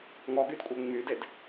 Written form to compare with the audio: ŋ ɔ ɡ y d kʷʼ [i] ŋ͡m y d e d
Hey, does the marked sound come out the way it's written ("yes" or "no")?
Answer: no